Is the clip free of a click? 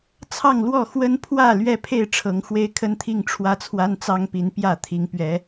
yes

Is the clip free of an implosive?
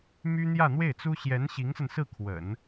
yes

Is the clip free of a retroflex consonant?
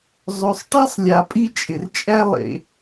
no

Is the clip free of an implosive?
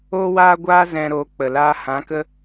yes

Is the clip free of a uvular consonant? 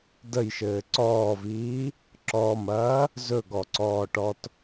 yes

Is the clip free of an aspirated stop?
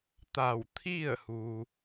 no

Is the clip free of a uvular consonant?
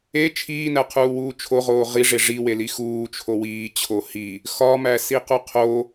no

